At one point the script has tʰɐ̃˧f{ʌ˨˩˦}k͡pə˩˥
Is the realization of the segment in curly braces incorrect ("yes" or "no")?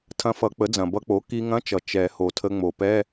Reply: no